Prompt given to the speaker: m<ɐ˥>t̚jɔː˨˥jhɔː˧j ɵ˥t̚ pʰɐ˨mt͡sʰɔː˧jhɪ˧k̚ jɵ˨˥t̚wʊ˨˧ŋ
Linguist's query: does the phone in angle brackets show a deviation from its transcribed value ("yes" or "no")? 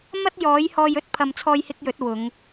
no